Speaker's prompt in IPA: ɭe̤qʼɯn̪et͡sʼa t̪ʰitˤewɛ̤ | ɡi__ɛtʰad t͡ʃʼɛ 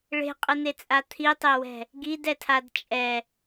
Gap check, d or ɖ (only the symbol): d